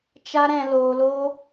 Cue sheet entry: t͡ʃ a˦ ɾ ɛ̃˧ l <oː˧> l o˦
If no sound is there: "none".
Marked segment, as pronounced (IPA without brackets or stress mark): oː˧